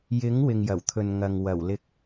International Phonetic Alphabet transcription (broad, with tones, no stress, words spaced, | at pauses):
jɪ˨˥ŋ wɪ˨ŋjɐ˨˩wt̪ʰɵ˨n ŋɐ˨ŋ wɐ˨˩wlɪ˧k̚